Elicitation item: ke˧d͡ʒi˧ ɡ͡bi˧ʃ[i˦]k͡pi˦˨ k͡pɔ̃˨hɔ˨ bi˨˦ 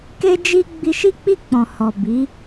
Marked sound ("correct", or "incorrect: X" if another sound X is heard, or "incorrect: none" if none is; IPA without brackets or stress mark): correct